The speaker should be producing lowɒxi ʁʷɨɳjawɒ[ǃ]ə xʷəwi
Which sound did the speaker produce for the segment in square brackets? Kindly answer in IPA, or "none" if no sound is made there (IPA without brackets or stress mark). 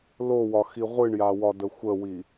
d